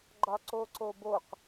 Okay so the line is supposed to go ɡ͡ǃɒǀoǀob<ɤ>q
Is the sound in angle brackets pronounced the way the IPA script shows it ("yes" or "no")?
no